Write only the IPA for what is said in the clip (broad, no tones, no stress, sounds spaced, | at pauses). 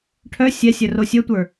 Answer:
ʈʰ œ sʲ ɛ sʲ œ r o sʲ œ tʷ ə˞